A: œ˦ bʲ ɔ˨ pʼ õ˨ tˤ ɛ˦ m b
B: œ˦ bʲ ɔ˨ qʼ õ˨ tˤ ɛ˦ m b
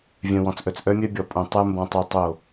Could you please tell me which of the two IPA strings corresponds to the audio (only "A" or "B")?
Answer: A